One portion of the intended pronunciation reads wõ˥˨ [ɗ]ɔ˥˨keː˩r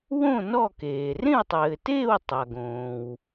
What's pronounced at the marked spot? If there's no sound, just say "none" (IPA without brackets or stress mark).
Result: n